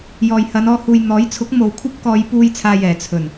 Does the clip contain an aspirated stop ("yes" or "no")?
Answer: yes